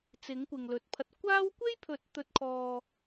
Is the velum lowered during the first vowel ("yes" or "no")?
no